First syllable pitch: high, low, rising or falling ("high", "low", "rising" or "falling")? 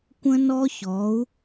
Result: high